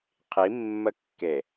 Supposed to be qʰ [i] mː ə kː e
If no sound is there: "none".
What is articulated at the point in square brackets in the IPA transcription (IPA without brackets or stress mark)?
i